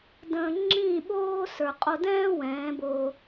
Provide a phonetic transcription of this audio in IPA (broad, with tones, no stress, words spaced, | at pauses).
də̃ː˨ ŋ͡ǁĩː˦˨ɓoː˦sə˞˨ qʼo˧dɛ̃ː˦ wɛ̃ː˨˦boː˧